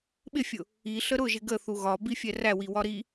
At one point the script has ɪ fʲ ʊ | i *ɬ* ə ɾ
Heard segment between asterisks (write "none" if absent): ɬ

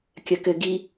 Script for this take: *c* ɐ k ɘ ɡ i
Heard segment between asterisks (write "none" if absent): kʲ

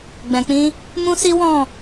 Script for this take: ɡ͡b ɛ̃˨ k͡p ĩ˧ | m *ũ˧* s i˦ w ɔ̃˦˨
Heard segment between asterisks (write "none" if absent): ũ˦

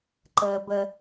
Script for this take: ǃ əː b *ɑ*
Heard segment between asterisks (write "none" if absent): ə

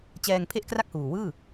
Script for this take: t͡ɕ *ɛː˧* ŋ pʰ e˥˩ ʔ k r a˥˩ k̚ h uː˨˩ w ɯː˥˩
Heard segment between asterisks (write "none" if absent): ɛː˧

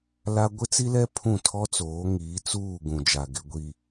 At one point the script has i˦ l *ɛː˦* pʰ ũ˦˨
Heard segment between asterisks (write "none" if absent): ɛ˦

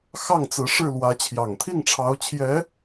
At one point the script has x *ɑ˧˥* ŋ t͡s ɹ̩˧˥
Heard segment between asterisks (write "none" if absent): ɑ˥˩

